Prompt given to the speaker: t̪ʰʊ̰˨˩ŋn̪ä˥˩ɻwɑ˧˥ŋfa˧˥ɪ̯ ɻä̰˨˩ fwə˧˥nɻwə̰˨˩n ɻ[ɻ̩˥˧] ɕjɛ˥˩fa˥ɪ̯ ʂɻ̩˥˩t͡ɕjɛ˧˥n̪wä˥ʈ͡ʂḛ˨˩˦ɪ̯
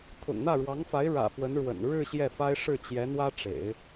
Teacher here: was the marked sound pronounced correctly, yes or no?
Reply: yes